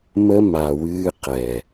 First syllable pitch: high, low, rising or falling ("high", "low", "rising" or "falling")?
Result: high